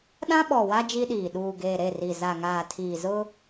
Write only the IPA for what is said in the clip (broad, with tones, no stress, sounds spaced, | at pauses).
ɗ ã˦ ɓ ɔ˨ w a˦ d͡ʒ i˦ ɗ iː˨ ɗ uː˨ ɡ eː˨ ɾ e˦˨ r i˨ z a˨ ŋ aː˨ tʰ iː˨ z ʊ˦